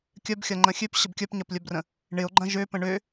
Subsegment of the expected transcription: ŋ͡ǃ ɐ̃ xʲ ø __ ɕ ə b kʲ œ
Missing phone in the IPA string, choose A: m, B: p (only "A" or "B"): B